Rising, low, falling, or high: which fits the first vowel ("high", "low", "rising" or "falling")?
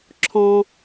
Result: high